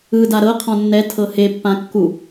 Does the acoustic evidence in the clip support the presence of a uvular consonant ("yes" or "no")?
yes